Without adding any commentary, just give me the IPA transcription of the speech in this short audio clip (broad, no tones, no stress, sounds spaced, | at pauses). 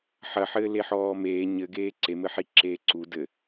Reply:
ħ ɐ ħ ɘː l e ħ ɔː m eː ɲ ɘ ɡ eː ǀ e m ɘ ħ i ǁ eː ǀ u d ɘ